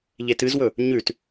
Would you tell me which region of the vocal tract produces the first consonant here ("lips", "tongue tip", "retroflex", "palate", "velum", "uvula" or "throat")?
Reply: palate